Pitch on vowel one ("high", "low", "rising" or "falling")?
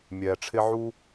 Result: low